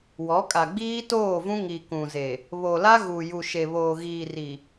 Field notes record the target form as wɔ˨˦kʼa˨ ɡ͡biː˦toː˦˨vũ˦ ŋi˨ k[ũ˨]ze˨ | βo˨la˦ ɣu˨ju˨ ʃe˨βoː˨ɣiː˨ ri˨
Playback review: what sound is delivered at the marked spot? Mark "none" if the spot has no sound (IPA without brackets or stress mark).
ũ˨